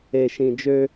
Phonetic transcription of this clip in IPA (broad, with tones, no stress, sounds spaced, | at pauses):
e˨ ʃ ĩ˨ d͡ʒ ø˦